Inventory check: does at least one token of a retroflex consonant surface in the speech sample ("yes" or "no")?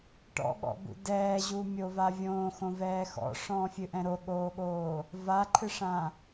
yes